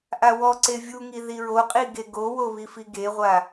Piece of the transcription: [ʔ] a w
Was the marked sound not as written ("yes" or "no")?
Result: no